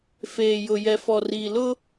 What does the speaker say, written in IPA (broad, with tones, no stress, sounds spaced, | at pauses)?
f eː˨ j ʊ˨ j ɛ˨ f ɔ˨ r i˨ l ʊ˦